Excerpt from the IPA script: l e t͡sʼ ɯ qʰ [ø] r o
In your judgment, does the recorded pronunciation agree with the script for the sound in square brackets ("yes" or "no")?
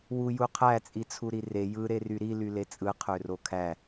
yes